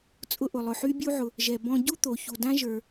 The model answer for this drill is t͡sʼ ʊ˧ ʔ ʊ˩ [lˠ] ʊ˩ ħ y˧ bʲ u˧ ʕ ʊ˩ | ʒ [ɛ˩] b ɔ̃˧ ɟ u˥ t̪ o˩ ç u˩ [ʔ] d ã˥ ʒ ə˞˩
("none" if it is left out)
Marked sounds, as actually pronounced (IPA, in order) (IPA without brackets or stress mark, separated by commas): lˠ, ɛ˩, none